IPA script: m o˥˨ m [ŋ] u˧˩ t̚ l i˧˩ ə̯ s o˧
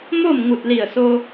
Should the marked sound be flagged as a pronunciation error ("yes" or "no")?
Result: no